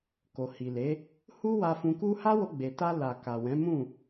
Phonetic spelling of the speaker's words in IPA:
k o˨ h i˨ l e˨˦ | h u˦ w a˧ f ũ˧ k u˦ h a˦ w o˧ ɡ͡b e˨ t a˧ l a˨ k a˨ w ɛ̃˨˦ m ũ˦˨

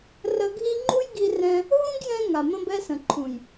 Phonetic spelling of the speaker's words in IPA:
r ə˧ ɡʱ i˦ ŋ͡ǃ u˦ j ɡ i˧ r ɛ̃˧ | ɦ ũ˦ ɡ j ɛ̃˧ ŋ a˨ m ə̃˧ b ɛ˧ s ə̃˨ ǃʰ ũ˨ j

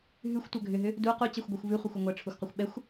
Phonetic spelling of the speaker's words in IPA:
ɦ ʉ xʷ tʷ œ ɡʱ ʏ ɦ ʏ | d u q u t͡ɕ ɛ xʷ ɡʷ ɛ xʷ v ʉ χʷ e xʷ ʏ ŋʷ ɛ ʈ͡ʂʰ u xʷ q œ xʷ ɓ ɛ xʷ

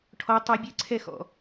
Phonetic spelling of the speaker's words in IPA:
ʈʰ ɔ tˤ ɵ bʲ ɨ ǀʰ ɛ x ɔ̰

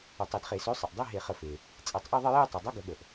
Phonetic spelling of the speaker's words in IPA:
ə˧˩˧ tˤ i˧˩˧ d χ e˧˩˧ s ø˨˥ sˤ ə˩ ʔ dˤ e˧˥˧ ɦ e˧˩˧ χ ə˧˩˧ f e˩ | t͡sʼ e˧˩˧ tˤ ʔ e˥˧ ðˤ ə˥˧ j e˥˧ j tˤ i˩ dˤ ə˧˥˧ ɡ ə˧˩˧ ɠ ə˩ ʔ

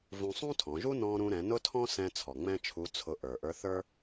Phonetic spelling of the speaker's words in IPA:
v ũ˧ sˤ ũ˥ tʰ ɔ̃˩˧ ʒ u˥ n ɔ̃˧ ɾ ũ˧ ɾ ɛ̃˩˧ n ʊ˥ tʰ ɔ̃˥ s ɛ̃˧ t͡sʰ ɔ˩ ŋ͡m ɛ̃˥ t͡ʃʰ u˧˥ t͡sʰ ʊ˧ ʔ ə˞˩ ʔ ə˞˧˥ θ ə˞˥

